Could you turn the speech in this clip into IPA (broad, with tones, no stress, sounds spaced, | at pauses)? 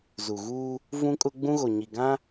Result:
z u˨ ɣ uː˦ | v ũ˦ kʼ ʊ˦ ɡ͡b ũ˦ ɣ o˨ ɲ i˨ ɡ ã˦